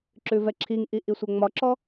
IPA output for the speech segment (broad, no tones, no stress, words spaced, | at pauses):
ǁʉvɛǁʰiŋʔi ʔisʷɛŋ͡mɒǁɔ